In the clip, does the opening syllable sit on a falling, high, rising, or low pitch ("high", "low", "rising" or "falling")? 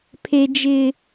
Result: high